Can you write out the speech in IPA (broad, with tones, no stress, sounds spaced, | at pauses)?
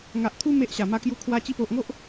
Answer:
ŋ a˨ ʔ t̪ʰ u˦ m e˦ ʔ ɕ a˨˩ m a˥˧ k j u˦ kʰ w a˧ t͡ɕ i˧ p o˨ ʔ ŋ o˦ ʔ